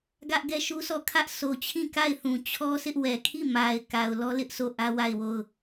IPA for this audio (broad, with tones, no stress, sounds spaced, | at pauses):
ɡ ä˦ ʔ ɡ ɛ˦ ʃ u˦ s ɔ˦˨ kʰ ä˦ ʔ sʰ o˨ t͡ɕʰ ĩ˦˨ k a˦˨ ɪ̯ θ ũ˨ t͡ɕʰ ɔ˦ sʰ ɪ˦ ʔ w ɛ˨ kʰ i˦˨ m a˨ ɪ̯ k a˨ ʊ̯ l ɔ˦ l ɪ˦ ʔ s o˦˨ ʔ ä˦ w a˦˨ ɪ̯ w o˦˨ ʊ̯